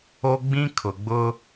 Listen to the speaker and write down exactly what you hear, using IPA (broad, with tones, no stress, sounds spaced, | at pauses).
o˦ ɡ͡b ĩ˦ kʰ ʊ˨ ɡ͡b ʊ˦